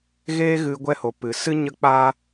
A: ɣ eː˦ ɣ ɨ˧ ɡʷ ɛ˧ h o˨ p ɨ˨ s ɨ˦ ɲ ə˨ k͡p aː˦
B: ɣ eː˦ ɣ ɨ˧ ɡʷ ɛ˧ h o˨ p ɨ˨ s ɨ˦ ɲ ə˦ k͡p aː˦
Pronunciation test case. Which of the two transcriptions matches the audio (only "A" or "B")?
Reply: B